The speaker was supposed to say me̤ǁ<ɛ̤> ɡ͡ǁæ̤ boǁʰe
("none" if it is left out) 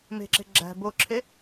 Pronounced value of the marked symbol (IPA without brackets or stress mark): e̤